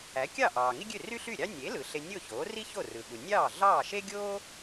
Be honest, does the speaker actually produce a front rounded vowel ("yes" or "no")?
yes